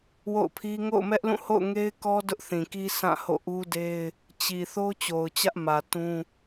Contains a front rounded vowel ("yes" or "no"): no